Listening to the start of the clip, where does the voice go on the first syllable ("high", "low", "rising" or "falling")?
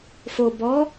low